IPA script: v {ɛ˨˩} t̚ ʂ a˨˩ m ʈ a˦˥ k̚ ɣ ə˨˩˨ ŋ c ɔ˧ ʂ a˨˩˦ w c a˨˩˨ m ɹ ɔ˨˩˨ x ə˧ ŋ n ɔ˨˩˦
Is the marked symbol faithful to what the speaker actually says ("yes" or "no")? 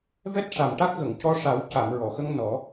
no